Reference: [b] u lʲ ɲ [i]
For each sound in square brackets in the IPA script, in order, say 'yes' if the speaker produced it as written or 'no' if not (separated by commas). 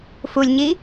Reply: no, yes